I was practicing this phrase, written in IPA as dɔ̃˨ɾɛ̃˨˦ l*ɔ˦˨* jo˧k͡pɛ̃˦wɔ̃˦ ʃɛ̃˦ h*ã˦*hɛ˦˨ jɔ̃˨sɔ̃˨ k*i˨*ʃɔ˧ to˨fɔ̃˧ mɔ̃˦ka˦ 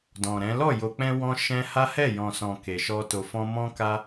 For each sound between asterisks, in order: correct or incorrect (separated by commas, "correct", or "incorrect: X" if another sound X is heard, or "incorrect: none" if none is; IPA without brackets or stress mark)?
correct, incorrect: a˦, incorrect: e˨